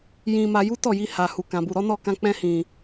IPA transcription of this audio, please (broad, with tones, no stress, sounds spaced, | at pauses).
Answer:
j ĩ˧ m a˧ j u˦ t ɔ˦˨ j i˧ h a˨ h u˨ k ã˨ b u˨ ɾ ɔ˨˦ n ɔ˦˨ k ã˧ k͡p ɛ̃˧ h ĩ˨